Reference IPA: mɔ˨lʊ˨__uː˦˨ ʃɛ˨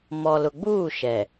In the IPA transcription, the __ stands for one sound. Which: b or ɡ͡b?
ɡ͡b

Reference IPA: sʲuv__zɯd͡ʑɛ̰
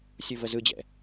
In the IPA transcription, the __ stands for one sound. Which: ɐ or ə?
ə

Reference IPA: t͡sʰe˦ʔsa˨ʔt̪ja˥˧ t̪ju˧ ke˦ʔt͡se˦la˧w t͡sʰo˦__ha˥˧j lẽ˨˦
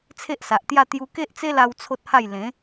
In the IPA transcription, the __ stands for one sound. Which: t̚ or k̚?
t̚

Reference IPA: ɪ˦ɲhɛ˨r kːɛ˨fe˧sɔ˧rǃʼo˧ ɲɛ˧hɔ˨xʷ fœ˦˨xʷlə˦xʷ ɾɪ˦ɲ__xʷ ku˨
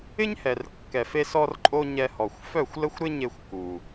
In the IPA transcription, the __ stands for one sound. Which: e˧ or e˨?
e˧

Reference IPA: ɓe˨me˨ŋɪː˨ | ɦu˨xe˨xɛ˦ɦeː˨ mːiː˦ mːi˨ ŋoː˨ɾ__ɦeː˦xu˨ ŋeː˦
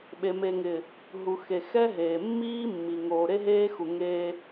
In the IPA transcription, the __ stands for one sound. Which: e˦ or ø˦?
e˦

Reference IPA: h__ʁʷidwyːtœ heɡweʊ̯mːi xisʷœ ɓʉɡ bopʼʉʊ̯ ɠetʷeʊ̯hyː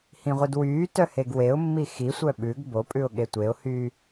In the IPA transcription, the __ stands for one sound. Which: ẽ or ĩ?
ĩ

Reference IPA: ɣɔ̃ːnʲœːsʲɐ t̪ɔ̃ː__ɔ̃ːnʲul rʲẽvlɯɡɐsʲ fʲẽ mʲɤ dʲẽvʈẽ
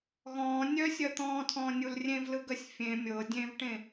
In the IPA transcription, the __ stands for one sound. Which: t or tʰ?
tʰ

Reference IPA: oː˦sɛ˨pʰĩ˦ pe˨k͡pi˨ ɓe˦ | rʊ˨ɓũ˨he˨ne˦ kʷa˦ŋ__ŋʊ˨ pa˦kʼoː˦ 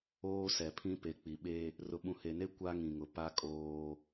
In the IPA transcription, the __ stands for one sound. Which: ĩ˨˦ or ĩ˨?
ĩ˨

